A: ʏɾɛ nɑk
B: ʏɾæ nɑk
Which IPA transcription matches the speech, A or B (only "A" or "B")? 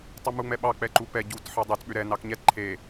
A